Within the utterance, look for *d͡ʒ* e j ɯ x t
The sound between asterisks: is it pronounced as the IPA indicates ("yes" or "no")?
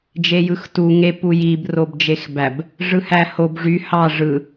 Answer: yes